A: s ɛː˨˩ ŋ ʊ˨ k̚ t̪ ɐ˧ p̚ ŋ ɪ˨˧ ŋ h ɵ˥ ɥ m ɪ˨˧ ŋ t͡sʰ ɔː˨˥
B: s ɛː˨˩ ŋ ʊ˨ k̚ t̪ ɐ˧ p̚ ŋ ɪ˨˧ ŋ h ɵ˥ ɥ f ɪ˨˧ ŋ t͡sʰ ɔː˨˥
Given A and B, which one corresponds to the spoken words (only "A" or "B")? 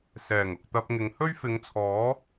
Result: B